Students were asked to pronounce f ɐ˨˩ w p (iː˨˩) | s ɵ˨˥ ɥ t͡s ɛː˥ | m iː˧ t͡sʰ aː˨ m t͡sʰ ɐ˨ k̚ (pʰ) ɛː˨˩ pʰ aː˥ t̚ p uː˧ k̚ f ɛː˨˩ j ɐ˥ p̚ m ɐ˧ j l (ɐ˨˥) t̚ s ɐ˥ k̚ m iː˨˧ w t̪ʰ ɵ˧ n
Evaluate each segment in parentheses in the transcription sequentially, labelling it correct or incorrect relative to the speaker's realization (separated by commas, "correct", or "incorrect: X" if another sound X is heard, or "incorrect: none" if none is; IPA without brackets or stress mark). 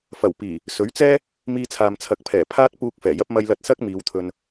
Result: correct, correct, incorrect: ɐ˧